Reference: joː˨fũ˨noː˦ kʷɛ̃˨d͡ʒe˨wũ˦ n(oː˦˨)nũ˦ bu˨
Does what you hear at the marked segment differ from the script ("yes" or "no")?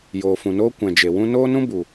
yes